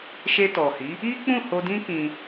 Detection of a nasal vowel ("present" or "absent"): present